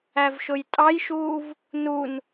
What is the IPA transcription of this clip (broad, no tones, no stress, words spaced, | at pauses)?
ævʃʊjtʼɑjʃuːv | nun